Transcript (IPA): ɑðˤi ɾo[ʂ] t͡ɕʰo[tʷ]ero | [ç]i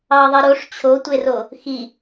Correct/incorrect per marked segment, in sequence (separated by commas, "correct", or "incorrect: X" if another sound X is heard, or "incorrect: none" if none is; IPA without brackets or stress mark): correct, correct, incorrect: x